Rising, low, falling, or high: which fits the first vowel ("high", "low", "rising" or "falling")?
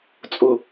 low